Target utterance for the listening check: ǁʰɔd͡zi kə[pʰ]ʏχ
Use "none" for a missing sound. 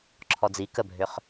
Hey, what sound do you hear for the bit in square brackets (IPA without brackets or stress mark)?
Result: bʱ